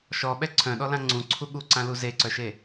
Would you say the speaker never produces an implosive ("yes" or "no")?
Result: no